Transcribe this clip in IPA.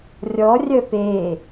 rʲ ɔ rʲ œ p e

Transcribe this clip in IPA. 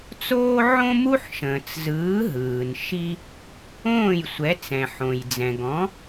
t͡s oː˥ ʕ õ˥ m u˥ ħ ʃ ə̃ː˩ t͡s z ɯː˩˥ ɦ ɯː˩ n ʃ i˧ | õː˥˩ j sʷ ɛ˩˥ t͡s ɛ̃˩ ħ õ˩ j d͡z ɛ̃˩ ɡ ɔ̃˩˥

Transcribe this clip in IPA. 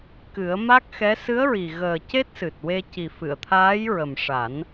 k ɨ˨˩˦ ə̯ m a˦˥ k̚ x ɛ˧˥ s ɨ˧˥ ə̯ ɹ i˨˩ ɣ əː˨˩ c e˦˥ t̚ s ɨ˨˩ t̚ w e˧ c i˨˩ f ɨ˨˩˨ ə̯ t̪ʰ aː˧˥ j ɹ ə˨˩ m ʂ a˨˩˦ n

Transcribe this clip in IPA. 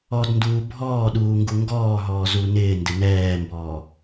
ɔ d n d uː bʱ ɔː ɗ uː ŋ ɡ u ŋ ɡ ɔː ɦ ɔː z u n ɪː n d ɪ n ɛː m b ɔː

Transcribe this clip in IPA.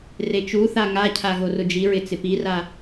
r e t͡ʃ u θ a ŋ a cʰ a ɣ o r ʊ d͡ʒ i ɹ ɪ t͡s ɪ p i r a

